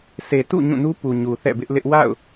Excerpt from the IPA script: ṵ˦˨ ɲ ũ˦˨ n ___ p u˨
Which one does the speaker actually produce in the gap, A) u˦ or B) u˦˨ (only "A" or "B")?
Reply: A